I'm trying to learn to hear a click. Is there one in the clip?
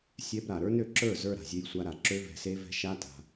yes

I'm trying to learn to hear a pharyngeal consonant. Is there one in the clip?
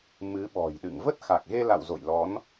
no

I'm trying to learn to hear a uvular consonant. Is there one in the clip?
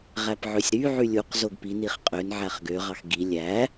yes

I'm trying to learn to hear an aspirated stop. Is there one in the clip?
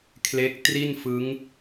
yes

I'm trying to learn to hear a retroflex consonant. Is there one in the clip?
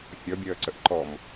no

